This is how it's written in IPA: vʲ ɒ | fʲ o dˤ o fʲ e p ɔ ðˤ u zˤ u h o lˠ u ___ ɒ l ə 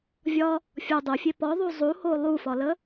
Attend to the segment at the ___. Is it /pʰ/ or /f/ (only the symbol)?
f